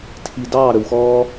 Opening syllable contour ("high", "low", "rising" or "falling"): low